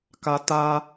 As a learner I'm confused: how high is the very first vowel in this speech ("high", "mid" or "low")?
low